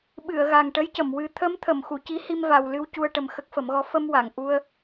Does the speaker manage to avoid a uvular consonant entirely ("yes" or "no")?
yes